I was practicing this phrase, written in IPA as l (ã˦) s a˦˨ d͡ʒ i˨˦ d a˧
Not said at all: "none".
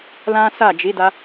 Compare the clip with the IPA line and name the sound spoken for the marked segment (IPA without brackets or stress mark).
ã˦